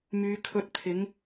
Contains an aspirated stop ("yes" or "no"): yes